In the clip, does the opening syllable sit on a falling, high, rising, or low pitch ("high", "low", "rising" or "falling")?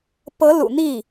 rising